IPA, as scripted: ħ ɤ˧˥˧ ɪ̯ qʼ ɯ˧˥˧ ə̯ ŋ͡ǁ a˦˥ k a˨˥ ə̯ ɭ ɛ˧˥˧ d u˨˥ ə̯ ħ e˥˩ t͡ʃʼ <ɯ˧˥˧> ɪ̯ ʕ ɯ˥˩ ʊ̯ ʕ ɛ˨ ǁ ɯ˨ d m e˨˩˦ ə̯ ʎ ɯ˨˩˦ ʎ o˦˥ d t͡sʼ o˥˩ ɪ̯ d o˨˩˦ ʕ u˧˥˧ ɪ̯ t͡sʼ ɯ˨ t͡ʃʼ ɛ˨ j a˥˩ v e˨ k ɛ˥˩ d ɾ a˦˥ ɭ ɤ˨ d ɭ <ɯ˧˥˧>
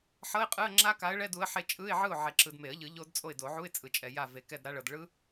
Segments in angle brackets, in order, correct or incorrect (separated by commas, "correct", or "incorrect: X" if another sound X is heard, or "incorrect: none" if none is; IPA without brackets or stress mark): correct, incorrect: ɯ˦˥